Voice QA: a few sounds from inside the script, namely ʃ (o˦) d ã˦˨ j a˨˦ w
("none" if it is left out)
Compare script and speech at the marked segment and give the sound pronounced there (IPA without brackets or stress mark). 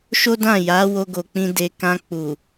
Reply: o˦